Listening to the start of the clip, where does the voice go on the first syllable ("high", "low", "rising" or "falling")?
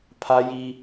high